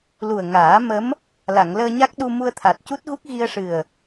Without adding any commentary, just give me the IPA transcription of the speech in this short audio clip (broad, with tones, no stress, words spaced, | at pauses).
lu˨˩ə̯ ŋaː˨˩˦ mə˧˥m | la˨˩˨ŋləː˧ɲa˦˥k̚ɗu˧ mu˧ə̯t̪ʰa˨˩t̚cu˦˥t̚ɣu˦˥k̚ ɣi˧ə̯ʂɨ˨˩ə̯